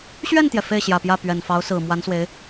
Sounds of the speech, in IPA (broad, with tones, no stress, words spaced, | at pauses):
ɕɥɛ˥˩nt̪jɛ˩ fe˥˩ɪ̯ɕjä˨˩pjä˥˩ pɥɛ˨˩nfɑ˧˥ʊ̯sɹ̩˨˩ mwa˧˥nswe˧˥ɪ̯